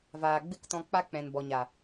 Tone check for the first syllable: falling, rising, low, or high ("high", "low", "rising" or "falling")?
low